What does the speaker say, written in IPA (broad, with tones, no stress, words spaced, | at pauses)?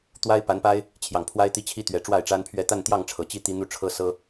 t̪wa˥ɪ̯pa˧˥npa˥ɪ̯ | t͡ɕʰjɑ˨˩ŋpʰwa˥ɪ̯ t̪i˧˥t͡ɕʰi˥t̪ɥɛ˨˩ʈ͡ʂwa˥˩ɪ̯ ʈ͡ʂa˥npʰɥɛ˥ t̪a˥˧nt̪jɑ˥˩ŋ ʈ͡ʂʰɤ˨˩t͡ɕi˥ t̪i˥˧n̪u˥˩ʈ͡ʂʰɤ˥sɤ˥